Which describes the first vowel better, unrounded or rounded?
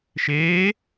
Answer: unrounded